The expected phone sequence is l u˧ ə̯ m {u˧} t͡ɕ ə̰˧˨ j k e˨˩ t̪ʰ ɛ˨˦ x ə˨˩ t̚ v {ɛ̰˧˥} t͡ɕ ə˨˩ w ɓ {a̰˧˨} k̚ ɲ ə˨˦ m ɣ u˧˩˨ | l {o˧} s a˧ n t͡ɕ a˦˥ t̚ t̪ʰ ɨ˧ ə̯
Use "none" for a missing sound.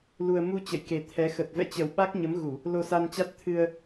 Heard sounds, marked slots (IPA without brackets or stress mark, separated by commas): u˧, ɛ̰˧˥, a˦˥, o˧